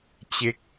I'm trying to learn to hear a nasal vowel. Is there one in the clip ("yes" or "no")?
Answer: no